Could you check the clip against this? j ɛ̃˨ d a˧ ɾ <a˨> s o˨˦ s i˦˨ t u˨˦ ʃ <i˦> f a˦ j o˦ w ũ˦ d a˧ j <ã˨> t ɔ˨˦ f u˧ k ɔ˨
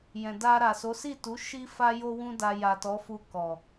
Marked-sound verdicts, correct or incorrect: correct, correct, incorrect: a˨

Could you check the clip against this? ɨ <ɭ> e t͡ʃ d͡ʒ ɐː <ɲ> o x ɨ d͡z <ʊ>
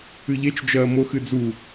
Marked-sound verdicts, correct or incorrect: incorrect: ʎ, incorrect: m, incorrect: u

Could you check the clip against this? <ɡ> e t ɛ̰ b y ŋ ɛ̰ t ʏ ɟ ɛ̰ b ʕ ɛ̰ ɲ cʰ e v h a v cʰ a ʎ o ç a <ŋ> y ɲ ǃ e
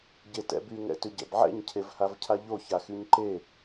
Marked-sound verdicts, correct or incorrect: incorrect: ɟ, incorrect: x

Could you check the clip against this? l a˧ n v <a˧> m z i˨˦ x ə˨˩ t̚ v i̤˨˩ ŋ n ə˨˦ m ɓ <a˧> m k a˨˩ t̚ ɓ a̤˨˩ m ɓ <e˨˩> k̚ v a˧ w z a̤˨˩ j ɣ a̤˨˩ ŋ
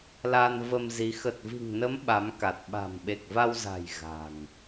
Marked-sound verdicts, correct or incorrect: incorrect: ə˧, incorrect: a˨˦, correct

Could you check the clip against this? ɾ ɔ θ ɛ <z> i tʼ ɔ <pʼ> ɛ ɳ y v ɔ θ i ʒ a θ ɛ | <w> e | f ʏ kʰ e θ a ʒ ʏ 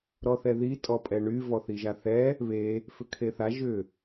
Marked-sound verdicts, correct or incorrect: incorrect: ð, correct, incorrect: β

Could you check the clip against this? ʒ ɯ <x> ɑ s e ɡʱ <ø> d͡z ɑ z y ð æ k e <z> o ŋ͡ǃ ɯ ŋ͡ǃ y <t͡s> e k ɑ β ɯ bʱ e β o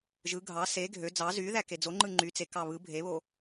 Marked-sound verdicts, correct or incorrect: incorrect: ɡʱ, correct, incorrect: d͡z, correct

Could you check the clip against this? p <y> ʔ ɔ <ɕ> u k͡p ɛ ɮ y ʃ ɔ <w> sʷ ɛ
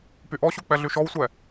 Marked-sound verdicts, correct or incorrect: correct, correct, correct

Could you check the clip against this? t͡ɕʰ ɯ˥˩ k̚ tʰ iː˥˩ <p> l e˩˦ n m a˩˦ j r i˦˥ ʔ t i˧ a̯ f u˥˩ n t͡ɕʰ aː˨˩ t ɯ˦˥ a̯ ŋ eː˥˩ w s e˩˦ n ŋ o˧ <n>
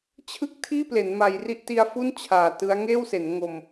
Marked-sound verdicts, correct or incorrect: correct, incorrect: m

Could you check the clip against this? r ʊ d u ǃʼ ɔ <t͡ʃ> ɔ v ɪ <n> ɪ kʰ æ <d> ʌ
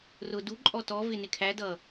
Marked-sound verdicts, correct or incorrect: incorrect: t, correct, correct

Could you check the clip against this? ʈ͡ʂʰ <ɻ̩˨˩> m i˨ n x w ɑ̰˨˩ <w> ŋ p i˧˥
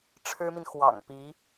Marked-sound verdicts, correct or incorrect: incorrect: ɻ̩˥, incorrect: none

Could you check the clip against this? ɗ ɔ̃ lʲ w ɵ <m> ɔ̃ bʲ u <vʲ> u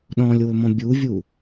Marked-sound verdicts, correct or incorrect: correct, correct

